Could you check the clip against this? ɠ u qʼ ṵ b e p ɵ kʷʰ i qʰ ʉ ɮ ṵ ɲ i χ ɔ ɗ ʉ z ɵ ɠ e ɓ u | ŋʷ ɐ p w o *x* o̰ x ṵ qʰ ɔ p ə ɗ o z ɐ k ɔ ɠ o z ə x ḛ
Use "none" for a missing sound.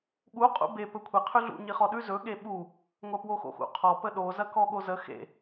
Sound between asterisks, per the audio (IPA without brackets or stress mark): x